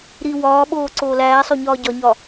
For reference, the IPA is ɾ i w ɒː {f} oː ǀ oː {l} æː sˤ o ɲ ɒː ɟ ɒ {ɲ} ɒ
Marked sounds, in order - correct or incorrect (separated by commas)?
incorrect, correct, correct